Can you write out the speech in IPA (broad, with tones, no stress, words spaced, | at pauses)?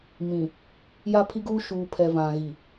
mĩ˨ | ja˦pʰi˦ɡuː˦ ʃuː˨pʰɛ˨ vã˨ɣi˨